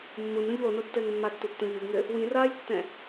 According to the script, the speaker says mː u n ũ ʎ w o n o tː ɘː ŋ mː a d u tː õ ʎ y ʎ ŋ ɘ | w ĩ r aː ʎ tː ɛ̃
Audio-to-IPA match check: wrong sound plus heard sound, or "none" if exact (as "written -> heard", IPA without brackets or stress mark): d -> tː